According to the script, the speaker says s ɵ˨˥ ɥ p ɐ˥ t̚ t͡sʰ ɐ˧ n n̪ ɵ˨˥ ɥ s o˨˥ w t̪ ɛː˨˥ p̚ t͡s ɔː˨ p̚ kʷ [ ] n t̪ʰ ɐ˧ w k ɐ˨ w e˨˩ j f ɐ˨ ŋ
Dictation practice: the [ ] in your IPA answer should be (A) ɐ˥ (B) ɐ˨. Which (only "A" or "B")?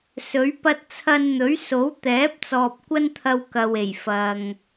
A